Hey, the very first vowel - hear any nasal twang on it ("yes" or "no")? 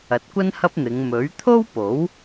no